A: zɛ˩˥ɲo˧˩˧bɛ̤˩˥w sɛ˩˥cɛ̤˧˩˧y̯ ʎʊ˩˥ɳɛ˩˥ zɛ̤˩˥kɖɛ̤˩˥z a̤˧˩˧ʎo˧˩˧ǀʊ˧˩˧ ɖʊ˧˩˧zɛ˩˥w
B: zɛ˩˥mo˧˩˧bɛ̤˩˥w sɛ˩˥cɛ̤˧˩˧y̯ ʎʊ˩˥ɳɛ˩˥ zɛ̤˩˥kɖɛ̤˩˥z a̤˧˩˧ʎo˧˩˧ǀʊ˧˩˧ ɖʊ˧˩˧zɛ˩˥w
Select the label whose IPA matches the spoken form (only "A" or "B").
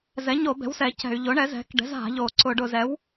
A